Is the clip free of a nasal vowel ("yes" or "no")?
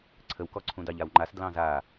no